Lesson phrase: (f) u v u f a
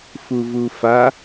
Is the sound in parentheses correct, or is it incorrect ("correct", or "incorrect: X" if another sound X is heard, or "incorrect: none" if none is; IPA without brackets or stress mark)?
correct